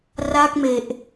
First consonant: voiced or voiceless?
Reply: voiced